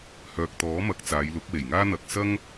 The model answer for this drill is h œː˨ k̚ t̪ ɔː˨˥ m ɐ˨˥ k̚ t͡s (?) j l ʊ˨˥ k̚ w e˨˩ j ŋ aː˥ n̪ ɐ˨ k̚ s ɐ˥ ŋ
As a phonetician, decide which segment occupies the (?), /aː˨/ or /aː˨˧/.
aː˨˧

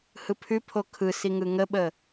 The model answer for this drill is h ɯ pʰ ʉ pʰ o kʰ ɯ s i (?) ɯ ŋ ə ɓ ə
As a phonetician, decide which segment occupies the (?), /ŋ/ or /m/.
ŋ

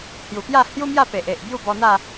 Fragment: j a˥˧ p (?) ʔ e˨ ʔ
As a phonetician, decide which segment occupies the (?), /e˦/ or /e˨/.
e˨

